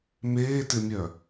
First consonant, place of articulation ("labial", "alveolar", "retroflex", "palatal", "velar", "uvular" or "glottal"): labial